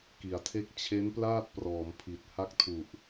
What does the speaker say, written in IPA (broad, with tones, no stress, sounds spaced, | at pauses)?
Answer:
k i˨˩ a̯ tʰ e˥˩ k̚ t͡ɕʰ e˦˥ n p l aː˥˩ t̚ p r ɔː˩˦ m pʰ i˨˩ t̚ h a˥˩ k̚ tʰ u˨˩ ʔ